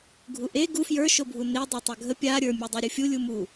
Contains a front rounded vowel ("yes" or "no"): no